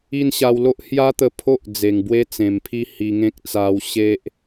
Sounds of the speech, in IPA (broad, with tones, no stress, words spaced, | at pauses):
i˥˧nɕa˧w lo˦ʔhja˦t̪ə˧ pʰo˦ʔ d͡ze˨˩ŋbwe˦t͡sẽ˨˩mpʰi˥˧ hi˧ŋẽ˦k̚ t͡sa˧wɕe˦ʔ